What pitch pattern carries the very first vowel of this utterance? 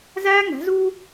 high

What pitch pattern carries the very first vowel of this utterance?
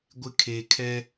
low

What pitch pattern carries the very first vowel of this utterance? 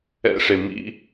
high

